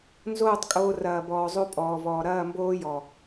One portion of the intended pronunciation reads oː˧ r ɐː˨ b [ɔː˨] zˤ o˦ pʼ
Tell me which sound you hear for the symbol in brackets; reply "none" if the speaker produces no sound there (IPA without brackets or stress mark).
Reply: ɔː˨